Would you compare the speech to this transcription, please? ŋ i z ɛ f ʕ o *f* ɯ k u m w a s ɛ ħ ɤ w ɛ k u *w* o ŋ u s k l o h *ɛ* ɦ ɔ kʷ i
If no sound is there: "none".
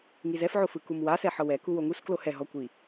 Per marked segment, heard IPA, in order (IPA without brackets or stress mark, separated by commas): f, w, ɛ